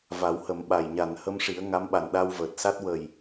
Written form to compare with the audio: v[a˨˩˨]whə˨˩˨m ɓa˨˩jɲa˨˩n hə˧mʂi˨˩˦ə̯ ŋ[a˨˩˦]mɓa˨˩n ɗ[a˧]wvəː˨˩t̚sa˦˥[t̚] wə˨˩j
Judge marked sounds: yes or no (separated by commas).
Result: no, no, yes, yes